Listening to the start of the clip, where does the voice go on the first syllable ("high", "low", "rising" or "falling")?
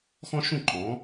high